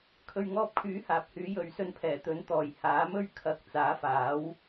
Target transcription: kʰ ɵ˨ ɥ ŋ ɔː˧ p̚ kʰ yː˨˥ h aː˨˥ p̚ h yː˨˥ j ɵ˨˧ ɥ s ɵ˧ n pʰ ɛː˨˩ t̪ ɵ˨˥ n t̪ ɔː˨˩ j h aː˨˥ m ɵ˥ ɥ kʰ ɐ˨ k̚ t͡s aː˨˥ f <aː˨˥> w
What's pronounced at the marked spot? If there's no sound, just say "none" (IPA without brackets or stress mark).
aː˨˥